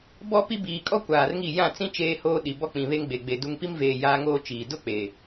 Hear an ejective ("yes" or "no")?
yes